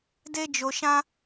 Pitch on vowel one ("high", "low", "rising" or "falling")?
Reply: high